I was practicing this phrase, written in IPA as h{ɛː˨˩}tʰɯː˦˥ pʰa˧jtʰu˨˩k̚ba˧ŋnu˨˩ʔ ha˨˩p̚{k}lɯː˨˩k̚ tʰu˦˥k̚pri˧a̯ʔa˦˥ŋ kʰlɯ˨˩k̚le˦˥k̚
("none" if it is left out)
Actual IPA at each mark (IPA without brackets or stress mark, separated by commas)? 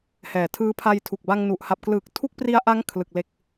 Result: ɛː˨˩, k